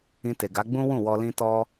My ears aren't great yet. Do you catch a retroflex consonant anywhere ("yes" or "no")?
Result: no